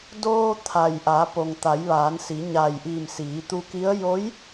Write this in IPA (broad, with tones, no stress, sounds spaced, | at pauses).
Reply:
d oː˧ t̪ʰ a˩ j ʔ aː˩˧ p o˩ ŋ t̪ a˩˧ j ʋ aː˩˧ n s i˩˧ ɲ a˧˩ j ʔ iː˧˩ m s iː˩˧ t̪ u˧ k i˧˥ ə̯ j o˧˥ j